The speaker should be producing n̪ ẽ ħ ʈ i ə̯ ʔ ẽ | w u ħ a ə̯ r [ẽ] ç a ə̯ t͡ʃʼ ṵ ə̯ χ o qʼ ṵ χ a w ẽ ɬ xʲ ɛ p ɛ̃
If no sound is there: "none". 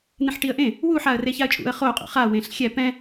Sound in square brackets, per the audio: e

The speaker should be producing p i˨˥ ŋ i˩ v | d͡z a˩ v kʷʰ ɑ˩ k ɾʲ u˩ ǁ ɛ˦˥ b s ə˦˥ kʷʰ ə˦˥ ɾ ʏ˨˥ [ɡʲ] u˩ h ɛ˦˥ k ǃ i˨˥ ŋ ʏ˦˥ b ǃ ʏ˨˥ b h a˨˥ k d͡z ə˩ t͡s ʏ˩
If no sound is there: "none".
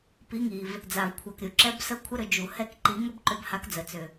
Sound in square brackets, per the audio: d͡ʒ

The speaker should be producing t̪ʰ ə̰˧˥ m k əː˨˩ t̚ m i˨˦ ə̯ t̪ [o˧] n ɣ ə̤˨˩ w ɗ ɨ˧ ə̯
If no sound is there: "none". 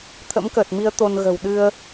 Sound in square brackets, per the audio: o˧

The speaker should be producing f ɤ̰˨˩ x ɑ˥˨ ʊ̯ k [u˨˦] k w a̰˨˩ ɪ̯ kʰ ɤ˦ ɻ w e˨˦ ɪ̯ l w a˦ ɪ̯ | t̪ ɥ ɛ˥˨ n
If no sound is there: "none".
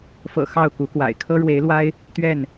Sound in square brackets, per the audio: u˨˦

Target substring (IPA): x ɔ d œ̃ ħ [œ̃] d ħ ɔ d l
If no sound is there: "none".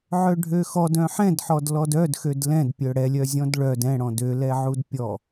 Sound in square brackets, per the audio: ɛ̃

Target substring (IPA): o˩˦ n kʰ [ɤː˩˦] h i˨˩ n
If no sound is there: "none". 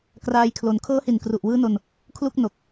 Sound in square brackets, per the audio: ɤː˦˥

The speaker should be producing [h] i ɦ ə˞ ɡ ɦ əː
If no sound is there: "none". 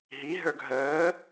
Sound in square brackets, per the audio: ɦ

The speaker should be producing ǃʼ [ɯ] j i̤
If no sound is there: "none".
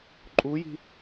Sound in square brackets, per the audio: u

